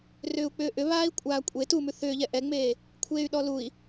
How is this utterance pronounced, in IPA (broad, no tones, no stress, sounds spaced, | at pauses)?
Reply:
r ʏː u̯ k͡p ʏː ʔ ʏ β aː i̯ kʷʼ aː kʷʼ e t u m ʉ θ ʏː ʎ ɛ ʔ ɛ ŋ͡m eː | kʷʰ eː y̯ ɗ ɔ l u i̯